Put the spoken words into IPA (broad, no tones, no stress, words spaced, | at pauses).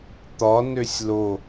t̪ɒnøsʲ lo